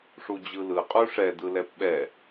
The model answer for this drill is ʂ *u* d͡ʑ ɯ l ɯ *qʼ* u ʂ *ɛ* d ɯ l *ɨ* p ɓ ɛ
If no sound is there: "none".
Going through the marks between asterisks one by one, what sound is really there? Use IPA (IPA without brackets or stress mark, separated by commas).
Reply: u, qʼ, ɛ, ɛ